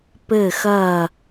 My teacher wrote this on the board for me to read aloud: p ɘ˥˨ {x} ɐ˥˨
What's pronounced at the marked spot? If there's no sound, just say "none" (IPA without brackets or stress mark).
x